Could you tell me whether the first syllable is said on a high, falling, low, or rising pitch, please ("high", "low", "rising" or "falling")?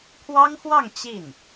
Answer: high